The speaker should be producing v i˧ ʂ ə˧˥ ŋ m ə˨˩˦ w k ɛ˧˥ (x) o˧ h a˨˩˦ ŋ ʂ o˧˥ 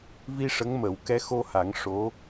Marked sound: correct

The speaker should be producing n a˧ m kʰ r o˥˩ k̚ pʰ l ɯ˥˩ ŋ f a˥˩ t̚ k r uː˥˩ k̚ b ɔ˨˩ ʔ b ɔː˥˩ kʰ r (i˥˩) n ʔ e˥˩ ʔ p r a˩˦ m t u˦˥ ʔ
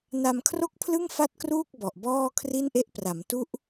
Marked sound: correct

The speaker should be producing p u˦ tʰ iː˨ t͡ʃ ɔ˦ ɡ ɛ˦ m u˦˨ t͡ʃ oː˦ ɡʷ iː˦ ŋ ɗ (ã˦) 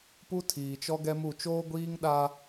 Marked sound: incorrect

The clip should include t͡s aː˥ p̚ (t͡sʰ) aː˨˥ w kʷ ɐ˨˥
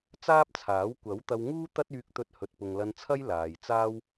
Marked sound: correct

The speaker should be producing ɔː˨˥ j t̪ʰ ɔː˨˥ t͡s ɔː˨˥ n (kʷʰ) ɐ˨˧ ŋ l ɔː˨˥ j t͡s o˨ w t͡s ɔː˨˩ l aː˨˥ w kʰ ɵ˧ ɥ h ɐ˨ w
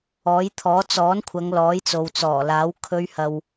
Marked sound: correct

